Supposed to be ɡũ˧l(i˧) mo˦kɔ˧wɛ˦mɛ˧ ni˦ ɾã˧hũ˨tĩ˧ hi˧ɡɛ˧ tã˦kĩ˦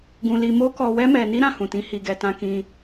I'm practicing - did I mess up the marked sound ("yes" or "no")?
no